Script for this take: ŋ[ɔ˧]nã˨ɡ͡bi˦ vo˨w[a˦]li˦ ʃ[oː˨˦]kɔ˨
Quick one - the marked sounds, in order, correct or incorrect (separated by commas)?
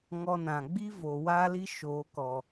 correct, correct, correct